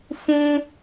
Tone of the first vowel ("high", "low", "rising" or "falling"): high